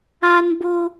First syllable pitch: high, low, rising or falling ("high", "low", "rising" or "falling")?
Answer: high